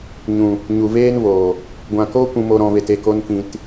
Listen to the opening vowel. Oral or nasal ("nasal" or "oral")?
nasal